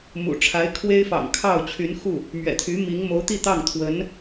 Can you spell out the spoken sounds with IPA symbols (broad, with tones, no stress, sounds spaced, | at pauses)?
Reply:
m ṵ˨˩ ʈ͡ʂʰ a˧˥ ɪ̯ kʰ w e˥ ɪ̯ f ɑ̰˨˩ ŋ kʰ ɑ˥˩ ʊ̯ t͡ɕʰ y˧˥ n x u˥˩ | m ɥ ɛ̰˨˩ t̪ʰ y˧˥ m i˧˥ ŋ m o˧˥ ʊ̯ t̪ i˥˧ t̪ ɑ˥˩ ŋ t̪ʰ w ə˧˥ n